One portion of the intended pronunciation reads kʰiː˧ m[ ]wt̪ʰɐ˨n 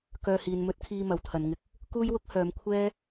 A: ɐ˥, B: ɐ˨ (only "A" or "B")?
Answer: B